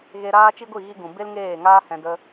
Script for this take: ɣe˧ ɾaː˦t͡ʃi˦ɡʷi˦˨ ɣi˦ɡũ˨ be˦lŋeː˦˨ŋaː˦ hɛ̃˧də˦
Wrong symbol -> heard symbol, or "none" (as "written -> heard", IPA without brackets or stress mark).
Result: none